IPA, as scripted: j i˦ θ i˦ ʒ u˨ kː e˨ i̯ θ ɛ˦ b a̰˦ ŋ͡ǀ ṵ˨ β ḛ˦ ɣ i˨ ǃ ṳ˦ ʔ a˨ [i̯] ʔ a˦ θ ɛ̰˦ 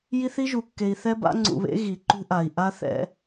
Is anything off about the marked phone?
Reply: no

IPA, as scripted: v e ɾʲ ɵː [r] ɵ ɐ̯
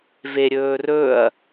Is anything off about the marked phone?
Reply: no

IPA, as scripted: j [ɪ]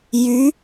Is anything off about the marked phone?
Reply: yes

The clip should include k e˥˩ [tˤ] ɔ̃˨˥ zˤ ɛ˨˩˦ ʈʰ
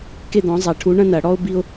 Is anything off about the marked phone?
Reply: yes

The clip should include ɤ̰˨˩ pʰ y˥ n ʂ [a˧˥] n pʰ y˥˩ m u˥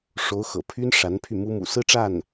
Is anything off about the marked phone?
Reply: no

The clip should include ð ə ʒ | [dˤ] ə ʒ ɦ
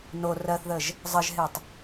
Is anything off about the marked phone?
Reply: yes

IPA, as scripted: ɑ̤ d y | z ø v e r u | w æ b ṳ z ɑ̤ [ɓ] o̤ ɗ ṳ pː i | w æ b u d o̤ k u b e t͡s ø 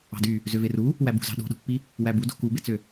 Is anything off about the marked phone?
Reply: yes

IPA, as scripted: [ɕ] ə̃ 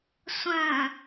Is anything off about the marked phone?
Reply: yes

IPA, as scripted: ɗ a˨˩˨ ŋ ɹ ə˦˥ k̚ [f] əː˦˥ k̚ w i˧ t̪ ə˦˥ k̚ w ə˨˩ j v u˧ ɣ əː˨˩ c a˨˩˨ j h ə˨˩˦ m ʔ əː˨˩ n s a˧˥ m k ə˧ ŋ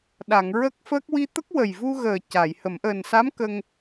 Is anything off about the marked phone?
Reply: no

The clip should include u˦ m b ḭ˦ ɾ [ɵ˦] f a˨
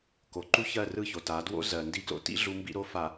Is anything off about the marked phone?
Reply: yes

